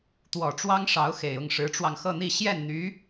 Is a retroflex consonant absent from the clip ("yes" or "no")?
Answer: no